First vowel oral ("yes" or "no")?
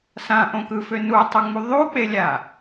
no